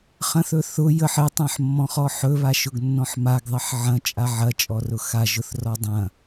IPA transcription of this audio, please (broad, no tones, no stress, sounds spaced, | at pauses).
χ ɐ̃ θ ɵ θ ʊ j ə ħ ɘ tˤ ã ħ mː ɔ̃ χ ɔ ħ ɵ β a ʃ ʊ ɡ nː ɔ̃ ħ m a ɡ ðˤ ɐ ħ ʕ ɐ̃ t͡ʃʼ a ʕ ɐ t͡ʃʼ ɔ r ʊ x a ʒ ʊ θ r ɔ dˤ ɐ̃